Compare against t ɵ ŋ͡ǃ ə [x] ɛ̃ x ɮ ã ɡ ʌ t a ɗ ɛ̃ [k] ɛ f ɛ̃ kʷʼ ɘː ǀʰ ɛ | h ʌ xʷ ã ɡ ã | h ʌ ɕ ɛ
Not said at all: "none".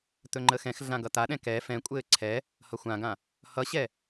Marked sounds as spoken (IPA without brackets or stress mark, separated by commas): x, k